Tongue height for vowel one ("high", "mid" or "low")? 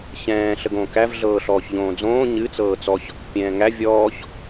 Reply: mid